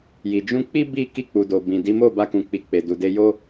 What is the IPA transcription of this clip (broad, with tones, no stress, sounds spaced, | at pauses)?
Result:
j i˨ d͡ʒ ũ˧ k͡p i˦ b i˦ k i˧ k͡p u˨ d o˨ b ĩ˨ d i˨˦ m o˦˨ b a˧ k ũ˨ k͡p i˨ k͡p e˨ d u˨ d e˧ j o˦